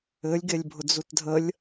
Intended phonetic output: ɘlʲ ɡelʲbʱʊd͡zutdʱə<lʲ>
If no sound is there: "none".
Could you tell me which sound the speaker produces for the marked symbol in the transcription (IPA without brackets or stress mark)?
lʲ